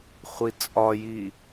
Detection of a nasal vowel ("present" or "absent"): absent